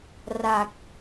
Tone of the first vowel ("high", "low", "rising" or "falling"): low